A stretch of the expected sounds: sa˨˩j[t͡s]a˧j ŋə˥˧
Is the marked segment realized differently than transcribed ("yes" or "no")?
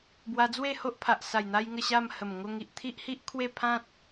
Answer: yes